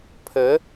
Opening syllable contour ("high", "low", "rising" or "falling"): rising